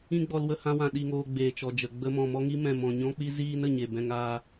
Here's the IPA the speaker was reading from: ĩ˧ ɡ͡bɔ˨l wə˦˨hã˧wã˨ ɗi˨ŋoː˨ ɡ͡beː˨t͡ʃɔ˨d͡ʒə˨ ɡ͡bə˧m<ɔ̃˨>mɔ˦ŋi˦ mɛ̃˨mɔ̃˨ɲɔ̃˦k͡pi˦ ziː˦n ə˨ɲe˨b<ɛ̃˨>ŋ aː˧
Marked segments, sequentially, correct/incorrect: correct, incorrect: ɛ̃˧

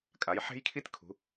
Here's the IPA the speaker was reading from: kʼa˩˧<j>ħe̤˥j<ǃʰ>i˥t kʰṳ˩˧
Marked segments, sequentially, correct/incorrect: correct, incorrect: kʰ

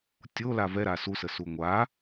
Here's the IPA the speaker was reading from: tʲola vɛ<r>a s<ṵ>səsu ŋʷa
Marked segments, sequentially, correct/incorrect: incorrect: ɾ, incorrect: u

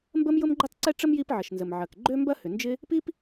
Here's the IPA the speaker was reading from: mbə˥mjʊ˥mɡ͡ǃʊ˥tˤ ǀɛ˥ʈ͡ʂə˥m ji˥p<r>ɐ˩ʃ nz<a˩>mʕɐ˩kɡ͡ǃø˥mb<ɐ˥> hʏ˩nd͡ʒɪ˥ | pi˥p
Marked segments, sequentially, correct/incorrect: incorrect: ʕ, incorrect: ə˩, correct

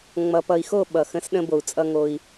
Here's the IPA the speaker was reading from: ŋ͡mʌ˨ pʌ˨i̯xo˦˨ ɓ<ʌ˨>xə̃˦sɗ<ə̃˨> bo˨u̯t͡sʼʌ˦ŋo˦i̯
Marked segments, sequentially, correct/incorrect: correct, incorrect: ə̃˦

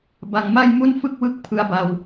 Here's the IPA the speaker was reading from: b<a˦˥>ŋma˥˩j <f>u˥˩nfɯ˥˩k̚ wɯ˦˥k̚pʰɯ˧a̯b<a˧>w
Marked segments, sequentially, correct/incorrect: incorrect: a˧, incorrect: m, correct

